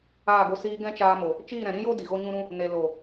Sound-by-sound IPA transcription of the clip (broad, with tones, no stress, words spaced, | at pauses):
aː˦˨ɡo˧ siː˧ ɡɛ̃˦t͡ʃaː˧mo˨ | t͡ʃiː˦˨ɾɛ̃˨ɾĩ˦jo˦ di˨ɣo˦ɲũ˦ɾũ˦ | ne˨ lo˨